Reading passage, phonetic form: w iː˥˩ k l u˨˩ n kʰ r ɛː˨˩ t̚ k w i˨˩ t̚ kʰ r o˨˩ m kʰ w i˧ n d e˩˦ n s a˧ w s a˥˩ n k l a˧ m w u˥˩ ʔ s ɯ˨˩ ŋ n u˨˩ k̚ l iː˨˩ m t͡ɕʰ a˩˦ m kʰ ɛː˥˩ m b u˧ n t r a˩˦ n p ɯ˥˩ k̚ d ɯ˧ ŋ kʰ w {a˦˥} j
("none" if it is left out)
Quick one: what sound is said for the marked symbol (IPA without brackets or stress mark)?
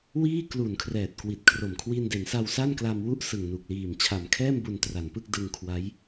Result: a˦˥